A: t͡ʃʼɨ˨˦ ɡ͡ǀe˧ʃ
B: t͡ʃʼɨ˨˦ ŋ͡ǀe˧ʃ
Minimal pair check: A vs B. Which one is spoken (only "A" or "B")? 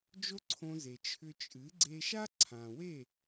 A